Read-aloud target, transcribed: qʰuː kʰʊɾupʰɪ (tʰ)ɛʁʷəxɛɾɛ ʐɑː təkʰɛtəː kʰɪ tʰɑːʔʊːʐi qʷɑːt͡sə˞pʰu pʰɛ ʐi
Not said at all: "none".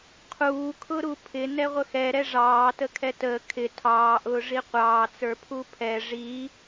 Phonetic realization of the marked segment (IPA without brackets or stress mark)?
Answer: n